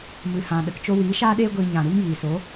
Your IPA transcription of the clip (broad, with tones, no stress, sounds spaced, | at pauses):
m ɨ˨ h ã˨ ɗ ə˨ k t͡ʃ o˧ w iː˨˦ ʃ aː˦ ɗ eː˦ ɡʷ iː˧ ɲ ã˨ ɾ u˦ ŋ j iː˨ s o˨˦